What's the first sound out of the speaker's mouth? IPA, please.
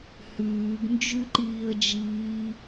h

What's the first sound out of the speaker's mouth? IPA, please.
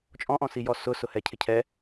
t͡ʃʼ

